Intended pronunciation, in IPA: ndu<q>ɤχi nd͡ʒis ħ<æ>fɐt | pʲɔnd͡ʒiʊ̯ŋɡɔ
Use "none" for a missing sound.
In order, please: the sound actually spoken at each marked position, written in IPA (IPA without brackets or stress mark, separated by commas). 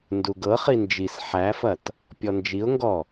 ɡ, æ